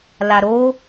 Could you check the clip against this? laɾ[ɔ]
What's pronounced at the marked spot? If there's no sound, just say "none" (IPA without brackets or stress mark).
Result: o